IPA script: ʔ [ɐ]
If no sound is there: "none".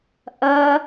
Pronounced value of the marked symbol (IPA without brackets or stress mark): ɐ